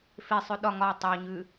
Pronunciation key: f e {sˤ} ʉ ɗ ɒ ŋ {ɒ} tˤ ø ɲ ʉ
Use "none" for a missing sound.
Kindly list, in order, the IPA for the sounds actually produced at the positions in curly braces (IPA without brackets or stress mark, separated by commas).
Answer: sˤ, ɒ